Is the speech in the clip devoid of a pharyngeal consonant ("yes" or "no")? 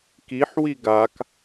no